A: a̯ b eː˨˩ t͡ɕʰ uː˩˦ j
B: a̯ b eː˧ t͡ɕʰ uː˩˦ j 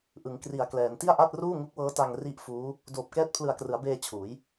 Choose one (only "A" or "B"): B